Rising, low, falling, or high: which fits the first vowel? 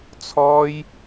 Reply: high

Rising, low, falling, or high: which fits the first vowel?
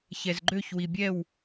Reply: low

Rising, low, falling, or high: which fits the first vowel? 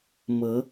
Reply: rising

